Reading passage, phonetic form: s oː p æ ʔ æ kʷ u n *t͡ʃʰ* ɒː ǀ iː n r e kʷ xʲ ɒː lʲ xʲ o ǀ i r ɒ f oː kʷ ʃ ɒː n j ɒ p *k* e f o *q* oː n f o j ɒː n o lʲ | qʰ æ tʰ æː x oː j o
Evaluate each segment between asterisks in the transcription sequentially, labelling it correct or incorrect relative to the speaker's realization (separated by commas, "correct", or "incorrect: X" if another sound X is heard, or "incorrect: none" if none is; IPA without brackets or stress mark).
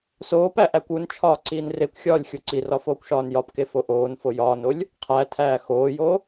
correct, correct, incorrect: ʔ